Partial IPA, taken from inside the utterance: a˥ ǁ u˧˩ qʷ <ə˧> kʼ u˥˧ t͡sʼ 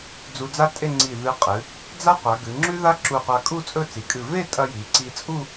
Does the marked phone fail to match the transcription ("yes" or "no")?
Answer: yes